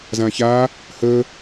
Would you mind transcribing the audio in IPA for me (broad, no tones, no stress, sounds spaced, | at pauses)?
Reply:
z ã ç a | h ə